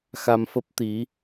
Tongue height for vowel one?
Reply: low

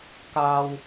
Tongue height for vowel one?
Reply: low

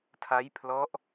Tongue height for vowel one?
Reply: low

